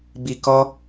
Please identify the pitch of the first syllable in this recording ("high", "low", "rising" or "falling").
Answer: low